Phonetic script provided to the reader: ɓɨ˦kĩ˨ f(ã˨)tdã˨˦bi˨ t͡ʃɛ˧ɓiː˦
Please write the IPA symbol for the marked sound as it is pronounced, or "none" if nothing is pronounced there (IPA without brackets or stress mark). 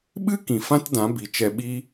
ã˦